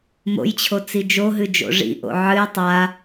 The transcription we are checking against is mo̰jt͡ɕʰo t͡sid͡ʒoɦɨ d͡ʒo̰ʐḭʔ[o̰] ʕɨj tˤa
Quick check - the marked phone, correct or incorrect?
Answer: correct